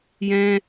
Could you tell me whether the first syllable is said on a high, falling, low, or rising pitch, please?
high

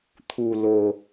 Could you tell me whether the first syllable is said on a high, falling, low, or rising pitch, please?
low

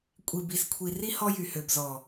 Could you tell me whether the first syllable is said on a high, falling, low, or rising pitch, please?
low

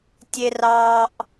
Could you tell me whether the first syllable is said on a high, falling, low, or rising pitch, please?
high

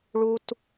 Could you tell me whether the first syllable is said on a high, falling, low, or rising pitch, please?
high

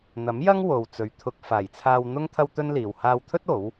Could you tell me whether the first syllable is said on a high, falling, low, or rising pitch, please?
rising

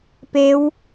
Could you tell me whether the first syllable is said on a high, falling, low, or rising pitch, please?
rising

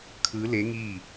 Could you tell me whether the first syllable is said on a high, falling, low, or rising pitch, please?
rising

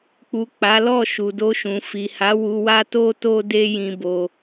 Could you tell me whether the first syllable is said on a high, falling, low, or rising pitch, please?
low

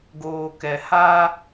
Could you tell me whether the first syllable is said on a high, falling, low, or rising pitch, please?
low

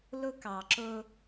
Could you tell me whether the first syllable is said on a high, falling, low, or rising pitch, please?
high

